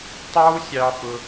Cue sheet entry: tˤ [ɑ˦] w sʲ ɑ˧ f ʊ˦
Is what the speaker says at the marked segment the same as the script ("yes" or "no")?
yes